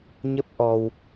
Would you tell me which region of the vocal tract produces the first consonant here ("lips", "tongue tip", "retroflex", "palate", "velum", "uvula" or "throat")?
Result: palate